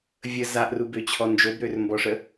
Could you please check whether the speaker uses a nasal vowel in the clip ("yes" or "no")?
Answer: no